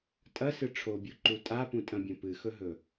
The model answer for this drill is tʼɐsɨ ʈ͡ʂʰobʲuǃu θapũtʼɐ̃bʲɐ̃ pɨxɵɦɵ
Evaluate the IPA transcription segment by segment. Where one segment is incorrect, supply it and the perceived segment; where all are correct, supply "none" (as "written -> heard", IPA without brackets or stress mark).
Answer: θ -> tʼ